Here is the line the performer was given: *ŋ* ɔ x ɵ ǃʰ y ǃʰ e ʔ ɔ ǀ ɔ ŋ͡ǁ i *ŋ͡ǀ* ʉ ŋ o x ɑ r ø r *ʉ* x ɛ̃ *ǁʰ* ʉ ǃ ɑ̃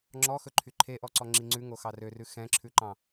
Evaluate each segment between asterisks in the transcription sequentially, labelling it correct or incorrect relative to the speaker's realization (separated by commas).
incorrect, correct, correct, correct